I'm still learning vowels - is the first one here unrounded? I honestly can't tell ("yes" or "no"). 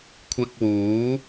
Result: yes